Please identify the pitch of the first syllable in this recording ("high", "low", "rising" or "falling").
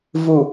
low